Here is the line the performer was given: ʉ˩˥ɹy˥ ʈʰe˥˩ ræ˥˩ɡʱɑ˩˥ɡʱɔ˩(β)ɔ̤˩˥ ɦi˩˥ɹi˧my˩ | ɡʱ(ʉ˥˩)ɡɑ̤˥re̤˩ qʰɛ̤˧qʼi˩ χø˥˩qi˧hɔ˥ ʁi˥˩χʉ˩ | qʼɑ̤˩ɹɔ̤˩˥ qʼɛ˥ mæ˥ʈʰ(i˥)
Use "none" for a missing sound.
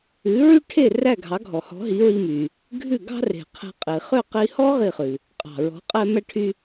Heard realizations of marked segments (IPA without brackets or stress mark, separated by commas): h, ʉ˥˩, y˥